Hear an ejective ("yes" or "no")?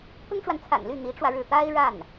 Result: no